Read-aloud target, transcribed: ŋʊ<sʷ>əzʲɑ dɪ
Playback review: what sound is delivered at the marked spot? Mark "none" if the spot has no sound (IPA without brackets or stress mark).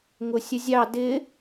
sʲ